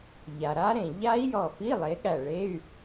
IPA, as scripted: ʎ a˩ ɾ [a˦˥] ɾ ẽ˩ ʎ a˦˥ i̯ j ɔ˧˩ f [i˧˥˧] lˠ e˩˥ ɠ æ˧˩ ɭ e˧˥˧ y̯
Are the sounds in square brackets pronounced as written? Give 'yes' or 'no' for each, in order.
yes, yes

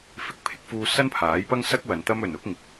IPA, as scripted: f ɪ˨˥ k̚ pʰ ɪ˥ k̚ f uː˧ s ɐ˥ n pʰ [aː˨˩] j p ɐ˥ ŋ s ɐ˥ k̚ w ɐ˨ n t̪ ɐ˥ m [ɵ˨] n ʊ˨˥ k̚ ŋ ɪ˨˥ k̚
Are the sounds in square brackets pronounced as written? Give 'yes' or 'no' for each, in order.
no, yes

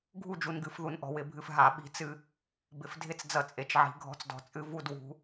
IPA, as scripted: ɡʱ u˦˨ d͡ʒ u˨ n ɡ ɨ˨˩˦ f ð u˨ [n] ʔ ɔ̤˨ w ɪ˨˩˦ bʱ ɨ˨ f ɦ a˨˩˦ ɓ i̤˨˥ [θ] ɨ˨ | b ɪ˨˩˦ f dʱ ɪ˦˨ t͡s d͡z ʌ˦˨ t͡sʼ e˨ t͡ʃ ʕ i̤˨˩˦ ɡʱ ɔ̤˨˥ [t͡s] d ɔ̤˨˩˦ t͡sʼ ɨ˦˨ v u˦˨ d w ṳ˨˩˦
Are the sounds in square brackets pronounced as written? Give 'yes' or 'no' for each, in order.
yes, no, yes

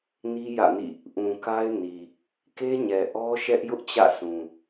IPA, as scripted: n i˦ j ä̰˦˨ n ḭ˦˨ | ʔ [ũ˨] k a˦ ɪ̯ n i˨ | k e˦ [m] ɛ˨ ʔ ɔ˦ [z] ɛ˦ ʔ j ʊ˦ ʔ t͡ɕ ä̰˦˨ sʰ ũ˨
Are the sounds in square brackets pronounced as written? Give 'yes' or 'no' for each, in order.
yes, no, no

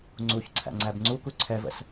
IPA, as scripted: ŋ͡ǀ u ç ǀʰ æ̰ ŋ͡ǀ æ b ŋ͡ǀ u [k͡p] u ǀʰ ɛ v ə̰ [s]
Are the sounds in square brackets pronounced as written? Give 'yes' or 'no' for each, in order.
no, yes

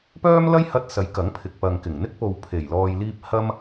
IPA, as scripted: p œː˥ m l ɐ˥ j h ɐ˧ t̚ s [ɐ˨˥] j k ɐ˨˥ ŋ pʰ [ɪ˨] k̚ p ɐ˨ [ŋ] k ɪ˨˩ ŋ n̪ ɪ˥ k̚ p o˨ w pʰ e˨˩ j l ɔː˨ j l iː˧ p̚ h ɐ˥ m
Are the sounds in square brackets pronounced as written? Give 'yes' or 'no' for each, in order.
yes, yes, yes

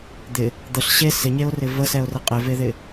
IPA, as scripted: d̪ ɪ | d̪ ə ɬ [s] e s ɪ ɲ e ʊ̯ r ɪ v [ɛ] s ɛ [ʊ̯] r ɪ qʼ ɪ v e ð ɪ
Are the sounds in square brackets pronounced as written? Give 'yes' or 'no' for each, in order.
no, no, yes

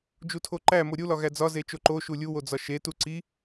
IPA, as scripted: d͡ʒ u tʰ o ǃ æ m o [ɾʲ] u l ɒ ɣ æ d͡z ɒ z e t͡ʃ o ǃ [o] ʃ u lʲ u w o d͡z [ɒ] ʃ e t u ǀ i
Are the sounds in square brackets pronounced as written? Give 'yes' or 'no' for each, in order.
yes, yes, yes

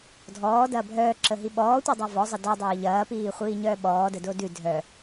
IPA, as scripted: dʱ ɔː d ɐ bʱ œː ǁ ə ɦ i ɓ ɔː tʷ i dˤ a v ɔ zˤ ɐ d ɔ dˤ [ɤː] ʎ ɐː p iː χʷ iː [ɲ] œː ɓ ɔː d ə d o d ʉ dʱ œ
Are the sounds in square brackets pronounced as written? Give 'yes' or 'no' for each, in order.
yes, yes

